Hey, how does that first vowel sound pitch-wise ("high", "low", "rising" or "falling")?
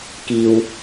low